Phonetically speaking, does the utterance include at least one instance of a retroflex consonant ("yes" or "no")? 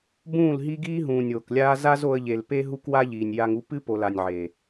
no